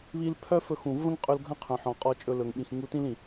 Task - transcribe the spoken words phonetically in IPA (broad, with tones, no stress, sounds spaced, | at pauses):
β i˧ l pʰ œ˦ f ɵ˧ x ũ˨ v ə̃˦ ŋ qʼ ɵ˧ l ɡʱ ɐ̃˦ qʰ œ̃˨ ħ ɔ̃˨ qʼ ɔ˧ t͡ʃʼ ɵ˧ l ɵ˨ ŋ ɓ ĩ˨ x ŋ u˧ t ĩ˦ l ĩ˨